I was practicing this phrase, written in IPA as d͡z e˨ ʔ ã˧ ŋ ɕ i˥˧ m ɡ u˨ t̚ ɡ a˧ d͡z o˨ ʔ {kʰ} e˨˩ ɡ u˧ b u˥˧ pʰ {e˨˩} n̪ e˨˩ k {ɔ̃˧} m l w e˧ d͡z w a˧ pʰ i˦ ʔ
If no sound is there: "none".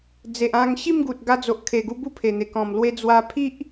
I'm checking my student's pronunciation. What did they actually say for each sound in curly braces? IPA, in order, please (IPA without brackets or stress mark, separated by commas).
kʰ, e˨˩, ɔ̃˨˩